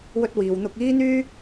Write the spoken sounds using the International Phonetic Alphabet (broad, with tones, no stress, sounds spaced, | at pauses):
w ɵ˥ t̚ w iː˨˧ w n̪ ʊ˧ k̚ iː˥ n̪ yː˥